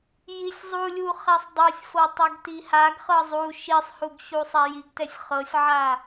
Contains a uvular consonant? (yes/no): yes